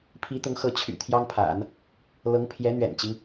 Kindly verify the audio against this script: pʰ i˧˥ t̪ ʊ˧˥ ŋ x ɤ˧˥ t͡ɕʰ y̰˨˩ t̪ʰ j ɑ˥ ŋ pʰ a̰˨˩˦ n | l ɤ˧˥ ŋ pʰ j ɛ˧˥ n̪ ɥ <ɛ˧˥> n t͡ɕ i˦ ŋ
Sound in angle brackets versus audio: incorrect: ɛ̰˨˩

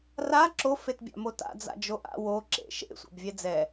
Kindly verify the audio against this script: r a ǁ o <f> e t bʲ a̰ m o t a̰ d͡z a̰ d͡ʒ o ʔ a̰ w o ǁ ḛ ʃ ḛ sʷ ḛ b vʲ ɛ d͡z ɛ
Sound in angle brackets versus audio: correct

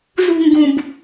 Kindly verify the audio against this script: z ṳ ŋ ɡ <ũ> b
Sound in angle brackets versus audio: correct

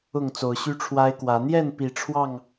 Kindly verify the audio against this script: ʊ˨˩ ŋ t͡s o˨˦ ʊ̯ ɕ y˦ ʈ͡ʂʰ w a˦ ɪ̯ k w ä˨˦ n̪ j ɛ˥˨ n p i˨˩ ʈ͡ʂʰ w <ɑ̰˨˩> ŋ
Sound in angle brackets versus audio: incorrect: ɑ˥˨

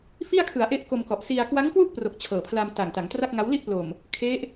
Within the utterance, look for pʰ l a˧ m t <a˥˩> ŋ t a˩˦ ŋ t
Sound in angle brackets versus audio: incorrect: a˨˩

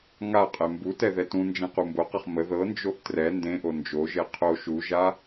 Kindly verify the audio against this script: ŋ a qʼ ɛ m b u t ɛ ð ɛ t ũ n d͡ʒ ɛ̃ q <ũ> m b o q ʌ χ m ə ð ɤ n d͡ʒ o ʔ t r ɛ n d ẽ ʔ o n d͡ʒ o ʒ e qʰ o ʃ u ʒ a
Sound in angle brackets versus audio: incorrect: u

